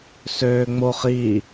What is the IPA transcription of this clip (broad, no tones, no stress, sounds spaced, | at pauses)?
s øː ŋ͡m o χ i